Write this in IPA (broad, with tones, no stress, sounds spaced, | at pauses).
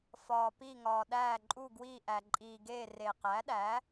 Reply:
f ɒː˩ p i˧˩ ŋ ɒː˩ ɗ æː˧˩ ǃʼ u˧˩ ɡ w iː˧˩ ʔ æ˩ ǃʼ iː˩ ɡ eː˧˩ r e˩ q æ˩˥ ɗ æ˩˥